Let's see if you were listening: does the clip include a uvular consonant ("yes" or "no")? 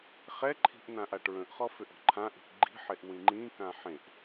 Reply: yes